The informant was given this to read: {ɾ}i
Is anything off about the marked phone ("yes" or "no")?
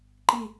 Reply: yes